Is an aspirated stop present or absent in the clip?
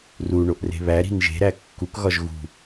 absent